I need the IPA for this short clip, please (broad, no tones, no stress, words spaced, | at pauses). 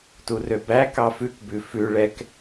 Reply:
turøbæ kɑfʉkbʉ fʉ ɭɛk